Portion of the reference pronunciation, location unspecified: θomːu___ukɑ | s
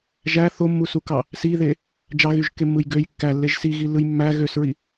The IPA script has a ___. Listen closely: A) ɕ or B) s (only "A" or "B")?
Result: B